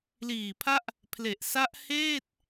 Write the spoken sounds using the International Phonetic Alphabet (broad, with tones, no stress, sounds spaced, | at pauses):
l iː˨˩ pʰ a˦˥ ʔ | pʰ l e˨˩ ʔ s a˦˥ ʔ h eː˥˩ t̚